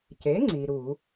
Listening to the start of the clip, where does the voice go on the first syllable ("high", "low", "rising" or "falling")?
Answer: rising